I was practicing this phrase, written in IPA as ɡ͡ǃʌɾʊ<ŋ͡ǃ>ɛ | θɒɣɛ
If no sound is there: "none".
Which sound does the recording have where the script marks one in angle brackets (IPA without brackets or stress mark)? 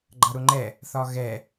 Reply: ŋ͡ǃ